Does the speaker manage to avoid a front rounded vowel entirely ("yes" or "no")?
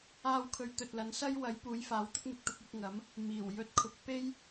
yes